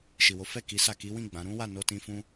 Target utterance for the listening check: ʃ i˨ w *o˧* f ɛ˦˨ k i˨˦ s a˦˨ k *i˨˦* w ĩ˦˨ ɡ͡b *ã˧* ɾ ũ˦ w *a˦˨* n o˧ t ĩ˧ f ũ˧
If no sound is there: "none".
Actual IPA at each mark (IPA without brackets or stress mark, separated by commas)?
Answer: o˨˦, i˨˦, ã˨˦, a˦˨